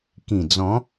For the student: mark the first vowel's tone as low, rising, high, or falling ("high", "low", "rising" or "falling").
low